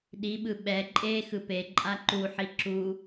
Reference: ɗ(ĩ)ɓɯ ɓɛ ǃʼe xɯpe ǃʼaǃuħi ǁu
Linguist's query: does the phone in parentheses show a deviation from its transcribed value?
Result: yes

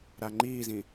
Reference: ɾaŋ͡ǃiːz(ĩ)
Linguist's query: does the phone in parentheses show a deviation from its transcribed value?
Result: no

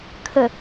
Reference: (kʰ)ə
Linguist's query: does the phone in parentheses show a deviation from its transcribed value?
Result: no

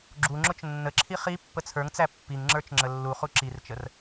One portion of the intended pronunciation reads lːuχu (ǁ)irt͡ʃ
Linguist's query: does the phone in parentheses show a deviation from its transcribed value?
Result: no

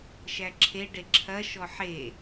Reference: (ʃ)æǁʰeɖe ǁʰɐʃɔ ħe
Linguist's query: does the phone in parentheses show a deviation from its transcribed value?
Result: no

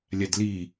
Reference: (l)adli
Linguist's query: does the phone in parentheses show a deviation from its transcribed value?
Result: yes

